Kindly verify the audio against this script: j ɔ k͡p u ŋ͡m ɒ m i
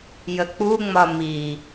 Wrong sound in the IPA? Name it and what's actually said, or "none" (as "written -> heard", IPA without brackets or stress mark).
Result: ɔ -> ə